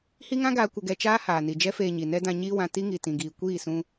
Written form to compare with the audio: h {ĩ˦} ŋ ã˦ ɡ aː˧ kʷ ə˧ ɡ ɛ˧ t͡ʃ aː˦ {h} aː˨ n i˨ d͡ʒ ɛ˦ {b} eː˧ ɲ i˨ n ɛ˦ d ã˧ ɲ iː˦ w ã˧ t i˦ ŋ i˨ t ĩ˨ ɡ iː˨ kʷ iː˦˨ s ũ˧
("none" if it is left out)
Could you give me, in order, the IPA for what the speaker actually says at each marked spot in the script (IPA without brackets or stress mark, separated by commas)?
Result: i˦, h, f